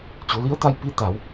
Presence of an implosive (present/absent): absent